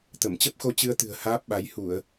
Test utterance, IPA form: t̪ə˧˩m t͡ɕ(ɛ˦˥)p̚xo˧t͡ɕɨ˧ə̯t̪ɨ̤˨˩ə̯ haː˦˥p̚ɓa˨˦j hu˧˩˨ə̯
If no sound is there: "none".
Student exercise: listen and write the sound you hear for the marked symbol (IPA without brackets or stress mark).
ə˦˥